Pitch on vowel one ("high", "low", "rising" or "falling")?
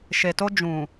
low